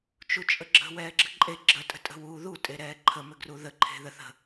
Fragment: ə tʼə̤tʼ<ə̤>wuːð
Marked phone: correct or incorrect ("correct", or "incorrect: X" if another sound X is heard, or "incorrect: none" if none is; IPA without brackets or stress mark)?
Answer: correct